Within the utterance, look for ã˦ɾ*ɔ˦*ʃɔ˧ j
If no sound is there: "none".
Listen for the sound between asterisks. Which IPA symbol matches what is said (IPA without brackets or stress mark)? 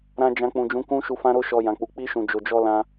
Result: o˦